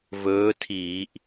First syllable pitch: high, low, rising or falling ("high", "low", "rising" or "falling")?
rising